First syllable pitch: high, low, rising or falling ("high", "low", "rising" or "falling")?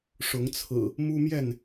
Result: rising